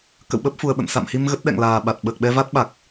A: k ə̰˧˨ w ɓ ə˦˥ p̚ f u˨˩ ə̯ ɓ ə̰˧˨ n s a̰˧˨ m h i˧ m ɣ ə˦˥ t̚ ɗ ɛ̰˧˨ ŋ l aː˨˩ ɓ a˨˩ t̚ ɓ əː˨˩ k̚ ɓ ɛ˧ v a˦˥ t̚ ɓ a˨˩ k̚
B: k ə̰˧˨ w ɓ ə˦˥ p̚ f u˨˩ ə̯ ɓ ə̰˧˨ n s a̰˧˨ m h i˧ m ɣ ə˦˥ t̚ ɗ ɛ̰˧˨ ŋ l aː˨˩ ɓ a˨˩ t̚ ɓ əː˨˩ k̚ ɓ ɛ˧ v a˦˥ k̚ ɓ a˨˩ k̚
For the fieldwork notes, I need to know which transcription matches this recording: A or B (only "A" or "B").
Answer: A